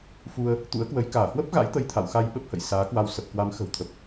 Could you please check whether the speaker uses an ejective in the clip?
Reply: no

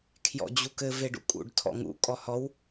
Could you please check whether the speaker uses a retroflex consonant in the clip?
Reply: yes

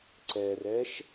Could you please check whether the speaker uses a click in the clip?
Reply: yes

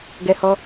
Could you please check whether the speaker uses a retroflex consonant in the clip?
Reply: no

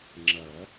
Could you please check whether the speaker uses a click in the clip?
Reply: yes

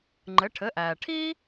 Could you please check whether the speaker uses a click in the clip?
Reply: yes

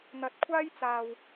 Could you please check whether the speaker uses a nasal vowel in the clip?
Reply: no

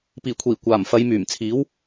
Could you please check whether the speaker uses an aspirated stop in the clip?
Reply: yes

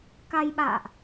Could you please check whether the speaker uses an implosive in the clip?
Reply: yes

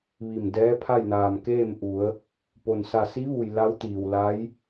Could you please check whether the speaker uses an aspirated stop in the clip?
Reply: yes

